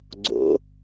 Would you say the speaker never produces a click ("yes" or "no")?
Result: no